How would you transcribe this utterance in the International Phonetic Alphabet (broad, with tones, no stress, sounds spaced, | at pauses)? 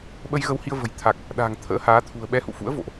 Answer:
ɓ ə˧ j ɣ ə˧ w h i˧ ə̯ v ə̤˨˩ j t̪ʰ a˨˩ k̚ | ɗ a̤˨˩ ŋ t̪ʰ ə̰ː˧˥ h aː˨˦ t̪ʰ ṳ˨˩ ə̯ ɓ ɛ˨˦ h ṵ˧˨ f ṵ˧˥ ə̯ v o̰˧˨ ʔ